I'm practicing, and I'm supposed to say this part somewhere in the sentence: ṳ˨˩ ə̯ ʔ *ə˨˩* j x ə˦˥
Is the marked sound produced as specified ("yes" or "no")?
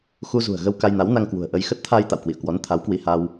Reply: no